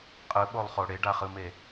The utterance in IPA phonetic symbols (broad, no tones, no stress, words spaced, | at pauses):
qʼɯɓolˠχo ɽeɖaχɯme